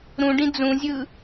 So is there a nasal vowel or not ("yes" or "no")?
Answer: yes